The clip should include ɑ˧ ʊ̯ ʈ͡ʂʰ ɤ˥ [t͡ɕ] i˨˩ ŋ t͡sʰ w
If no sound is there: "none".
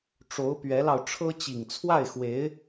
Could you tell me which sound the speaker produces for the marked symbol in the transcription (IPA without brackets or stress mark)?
t͡ɕ